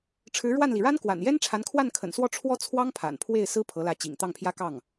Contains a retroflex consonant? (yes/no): yes